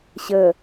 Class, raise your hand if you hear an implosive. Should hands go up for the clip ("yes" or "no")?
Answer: no